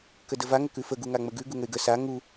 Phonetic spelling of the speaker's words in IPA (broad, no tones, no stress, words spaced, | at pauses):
kədəva ŋəkʉfə ɡuŋaŋ͡məɡʉ ɡuŋəɪ̯ɡə sa ŋu